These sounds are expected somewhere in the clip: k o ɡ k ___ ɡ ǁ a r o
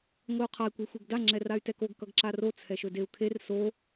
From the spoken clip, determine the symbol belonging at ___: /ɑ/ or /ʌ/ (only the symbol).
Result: ʌ